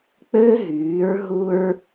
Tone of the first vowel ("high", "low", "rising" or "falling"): high